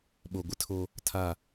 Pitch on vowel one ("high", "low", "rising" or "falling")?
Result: low